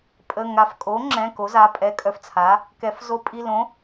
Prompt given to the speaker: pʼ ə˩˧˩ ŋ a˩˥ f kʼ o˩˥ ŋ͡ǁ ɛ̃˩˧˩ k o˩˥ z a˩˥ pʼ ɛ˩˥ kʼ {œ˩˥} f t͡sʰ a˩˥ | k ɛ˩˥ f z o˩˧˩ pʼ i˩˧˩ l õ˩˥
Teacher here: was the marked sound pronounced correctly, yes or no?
yes